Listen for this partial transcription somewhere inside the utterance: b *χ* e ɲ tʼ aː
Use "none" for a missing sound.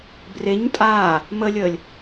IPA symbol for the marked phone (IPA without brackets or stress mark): r